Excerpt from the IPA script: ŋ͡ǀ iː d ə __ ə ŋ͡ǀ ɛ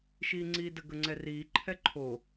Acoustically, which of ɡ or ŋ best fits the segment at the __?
ɡ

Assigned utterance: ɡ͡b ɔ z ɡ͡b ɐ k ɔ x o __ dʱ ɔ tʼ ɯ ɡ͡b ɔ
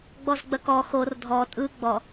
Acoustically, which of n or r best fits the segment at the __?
r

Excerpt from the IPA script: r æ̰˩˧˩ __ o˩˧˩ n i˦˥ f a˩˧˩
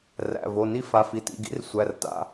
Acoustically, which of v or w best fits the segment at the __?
v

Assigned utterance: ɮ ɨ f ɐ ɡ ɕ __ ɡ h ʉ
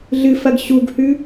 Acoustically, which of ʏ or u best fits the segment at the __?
u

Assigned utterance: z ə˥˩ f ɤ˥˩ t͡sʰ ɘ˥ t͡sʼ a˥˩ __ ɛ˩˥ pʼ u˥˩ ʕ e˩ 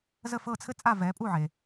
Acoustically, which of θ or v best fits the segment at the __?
v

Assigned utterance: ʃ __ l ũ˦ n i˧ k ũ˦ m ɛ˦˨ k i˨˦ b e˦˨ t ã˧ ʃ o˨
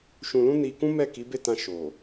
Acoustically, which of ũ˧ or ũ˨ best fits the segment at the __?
ũ˧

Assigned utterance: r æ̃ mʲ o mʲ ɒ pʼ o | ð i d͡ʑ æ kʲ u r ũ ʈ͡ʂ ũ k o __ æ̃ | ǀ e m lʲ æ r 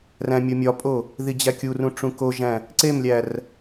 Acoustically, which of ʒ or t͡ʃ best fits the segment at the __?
ʒ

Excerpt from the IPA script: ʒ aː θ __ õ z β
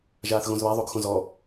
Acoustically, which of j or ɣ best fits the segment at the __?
ɣ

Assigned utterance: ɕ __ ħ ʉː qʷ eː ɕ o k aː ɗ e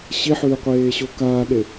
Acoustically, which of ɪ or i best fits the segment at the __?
i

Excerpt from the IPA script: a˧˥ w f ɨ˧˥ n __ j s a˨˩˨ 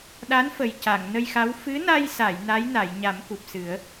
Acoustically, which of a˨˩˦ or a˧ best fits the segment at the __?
a˧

